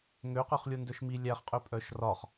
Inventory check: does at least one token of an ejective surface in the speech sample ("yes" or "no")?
yes